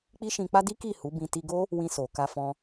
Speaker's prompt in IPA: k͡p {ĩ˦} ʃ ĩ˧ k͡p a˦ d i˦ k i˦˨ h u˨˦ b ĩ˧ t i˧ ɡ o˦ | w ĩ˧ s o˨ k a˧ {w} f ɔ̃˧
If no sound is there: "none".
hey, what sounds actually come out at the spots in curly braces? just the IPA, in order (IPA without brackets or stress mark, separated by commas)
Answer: i˦, none